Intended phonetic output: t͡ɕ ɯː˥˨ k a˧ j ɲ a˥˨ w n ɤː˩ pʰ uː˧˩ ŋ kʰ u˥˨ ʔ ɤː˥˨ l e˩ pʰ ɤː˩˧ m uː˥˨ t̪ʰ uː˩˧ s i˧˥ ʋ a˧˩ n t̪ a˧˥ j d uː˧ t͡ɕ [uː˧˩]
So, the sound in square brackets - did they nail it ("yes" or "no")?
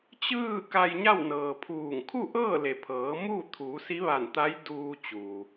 no